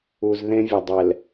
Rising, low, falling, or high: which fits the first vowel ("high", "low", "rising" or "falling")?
low